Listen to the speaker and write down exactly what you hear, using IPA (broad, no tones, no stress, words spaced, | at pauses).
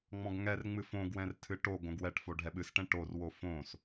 ŋ͡mɔ̃ɡŋɛrŋ͡mɨ fõɡwɛ̃rtʰɨ ʈo ɡõɡwɛʈfo ɖʱɛɓɨsʈɛ̃ ʈorwo fõs